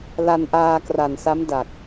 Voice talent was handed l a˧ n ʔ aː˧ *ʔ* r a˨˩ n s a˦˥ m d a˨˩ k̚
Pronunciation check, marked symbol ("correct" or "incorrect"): incorrect